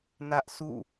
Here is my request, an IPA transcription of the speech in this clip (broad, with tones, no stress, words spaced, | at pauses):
nä˦ʔ sʰṵ˦˨